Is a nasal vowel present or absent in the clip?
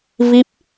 absent